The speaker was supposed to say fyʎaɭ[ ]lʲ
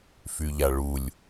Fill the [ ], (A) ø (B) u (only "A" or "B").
B